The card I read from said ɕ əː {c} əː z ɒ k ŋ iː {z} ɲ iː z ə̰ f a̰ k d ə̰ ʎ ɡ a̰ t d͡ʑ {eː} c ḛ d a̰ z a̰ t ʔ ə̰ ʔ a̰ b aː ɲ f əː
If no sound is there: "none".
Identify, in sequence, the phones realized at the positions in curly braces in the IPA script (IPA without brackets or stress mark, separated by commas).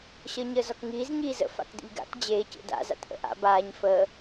ɲ, z, eː